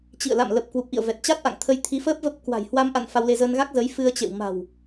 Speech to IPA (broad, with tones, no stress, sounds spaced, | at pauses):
t͡ɕ ḭ˧˨ ə̯ l a̰˧˨ m l ə˨˩ p̚ k w u˨˩ p̚ ʔ ḭ˧˨ ə̯ v ɛ˨˩ t̚ t͡ɕ a˦˥ t̚ ʔ a̰˧˨ ŋ t̪ʰ ə˧ j t̪ʰ i˨˦ f əː˦˥ p̚ v ə˦˥ p̚ k w a̤˨˩ j h w a˧ m ʔ a̰˧˨ n f a˧ w l e˧ z əː˧ n ɣ a˦˥ k̚ z ə˨˦ j f ɨ˧ ə̯ t͡ɕ ḛ˧˨ w m a̤˨˩ w